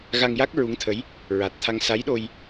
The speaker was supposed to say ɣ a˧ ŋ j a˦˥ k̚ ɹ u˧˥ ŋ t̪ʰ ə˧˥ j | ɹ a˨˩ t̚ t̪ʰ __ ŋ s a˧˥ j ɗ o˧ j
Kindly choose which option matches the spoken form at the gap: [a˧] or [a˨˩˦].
a˧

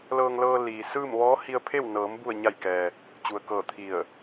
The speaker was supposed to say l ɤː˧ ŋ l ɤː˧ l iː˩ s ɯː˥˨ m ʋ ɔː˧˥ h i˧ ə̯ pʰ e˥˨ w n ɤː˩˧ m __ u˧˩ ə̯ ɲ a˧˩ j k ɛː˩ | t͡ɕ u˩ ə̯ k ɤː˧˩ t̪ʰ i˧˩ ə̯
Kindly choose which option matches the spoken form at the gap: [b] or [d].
b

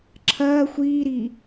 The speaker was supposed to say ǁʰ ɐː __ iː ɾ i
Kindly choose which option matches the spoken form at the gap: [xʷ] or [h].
xʷ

